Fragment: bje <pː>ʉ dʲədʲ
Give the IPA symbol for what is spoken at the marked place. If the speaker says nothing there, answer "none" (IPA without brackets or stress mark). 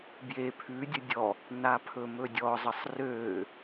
pʰ